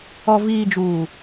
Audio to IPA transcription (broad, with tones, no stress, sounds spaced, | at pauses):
ɔ˨ v iː˨ d͡ʒ uː˨